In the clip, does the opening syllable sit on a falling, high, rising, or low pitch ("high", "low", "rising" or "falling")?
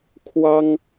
high